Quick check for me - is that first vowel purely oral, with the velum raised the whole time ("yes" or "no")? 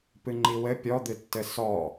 yes